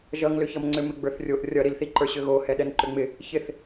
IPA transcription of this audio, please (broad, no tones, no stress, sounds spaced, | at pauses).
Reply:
ʒ ʌ ŋ l ʏ ç ʌ m ŋ͡ǀ ʏ m ɪ ɡ͡b ə˞ θ rʲ o ʔ rʲ ʌ ɾ i l θ i ǃ ə˞ ɕ ʏ ɣ o h ɛ ɗ ɛ n ǃ ʏ ŋ͡m ɪ | ç ɪ θ